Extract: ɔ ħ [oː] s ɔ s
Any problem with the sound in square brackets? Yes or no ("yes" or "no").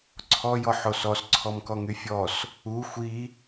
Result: yes